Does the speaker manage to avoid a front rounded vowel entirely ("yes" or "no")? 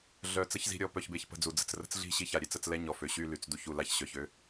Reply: no